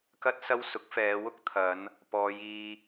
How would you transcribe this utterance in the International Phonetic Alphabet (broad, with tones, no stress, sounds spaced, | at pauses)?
k ɐ˥ t̚ s ɐ˥ w s ʊ˨˥ k̚ f ɛː˨˧ w ʊ˥ k̚ t̪ʰ ɐ˨˧ n | p ɔː˨˧ j iː˧